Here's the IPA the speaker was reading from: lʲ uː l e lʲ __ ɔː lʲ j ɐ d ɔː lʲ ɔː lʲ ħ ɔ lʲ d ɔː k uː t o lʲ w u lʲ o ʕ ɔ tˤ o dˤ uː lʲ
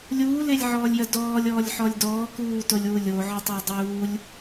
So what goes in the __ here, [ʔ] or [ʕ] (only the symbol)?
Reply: ʕ